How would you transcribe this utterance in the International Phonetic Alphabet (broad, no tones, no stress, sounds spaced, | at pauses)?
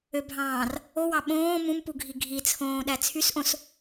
ø bʱ ɑ̃ː r | o w ɑ ɓ õː m ũ m p u ɡʱ i ɡʱ i t͡sʰ õː ɗ æ t͡sʰ y s ʔ õ s